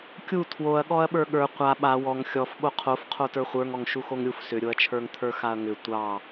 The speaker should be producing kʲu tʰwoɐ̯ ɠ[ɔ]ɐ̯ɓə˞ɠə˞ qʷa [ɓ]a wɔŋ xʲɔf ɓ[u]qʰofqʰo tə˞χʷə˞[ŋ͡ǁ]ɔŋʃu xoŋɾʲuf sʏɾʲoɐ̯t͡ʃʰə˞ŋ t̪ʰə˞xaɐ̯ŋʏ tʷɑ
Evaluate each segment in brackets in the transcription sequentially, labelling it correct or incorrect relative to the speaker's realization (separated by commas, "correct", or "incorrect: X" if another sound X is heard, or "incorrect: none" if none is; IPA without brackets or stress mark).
correct, correct, incorrect: o, incorrect: ŋ